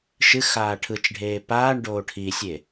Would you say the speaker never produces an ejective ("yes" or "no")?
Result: yes